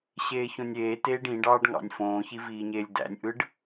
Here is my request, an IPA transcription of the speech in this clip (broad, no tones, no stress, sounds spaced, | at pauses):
ɕ eː ç õ nʲ eː t eː ɖ ĩ ɖ ɑː ɖ ŋ ɑ̰ nʲ f õː ç i v iː ɲ eː lʲ d æ̰ nʲ ʔ ɯ ɖ